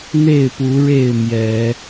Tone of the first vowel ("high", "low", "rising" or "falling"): falling